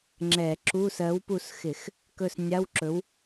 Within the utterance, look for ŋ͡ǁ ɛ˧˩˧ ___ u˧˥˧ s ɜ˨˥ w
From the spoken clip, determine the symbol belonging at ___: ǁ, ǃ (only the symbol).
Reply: ǁ